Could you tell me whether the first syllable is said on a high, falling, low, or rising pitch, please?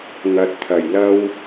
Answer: rising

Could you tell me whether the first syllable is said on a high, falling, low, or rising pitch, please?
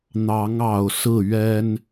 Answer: rising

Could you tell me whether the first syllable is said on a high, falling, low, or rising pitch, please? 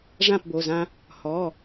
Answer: falling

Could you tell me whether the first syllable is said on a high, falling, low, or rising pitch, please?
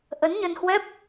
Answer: rising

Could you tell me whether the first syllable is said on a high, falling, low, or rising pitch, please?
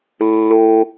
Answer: high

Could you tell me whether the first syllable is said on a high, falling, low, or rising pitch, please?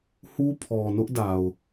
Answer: high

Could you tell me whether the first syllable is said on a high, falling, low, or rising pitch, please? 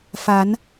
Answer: rising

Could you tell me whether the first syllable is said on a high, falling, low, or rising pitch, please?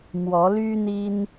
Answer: rising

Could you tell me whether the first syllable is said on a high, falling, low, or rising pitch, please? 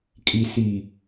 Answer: low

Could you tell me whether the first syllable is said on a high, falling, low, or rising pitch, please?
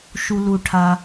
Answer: high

